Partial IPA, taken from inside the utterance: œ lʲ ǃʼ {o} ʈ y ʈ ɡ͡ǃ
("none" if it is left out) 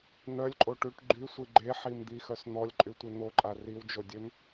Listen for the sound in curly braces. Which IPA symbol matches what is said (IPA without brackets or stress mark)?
o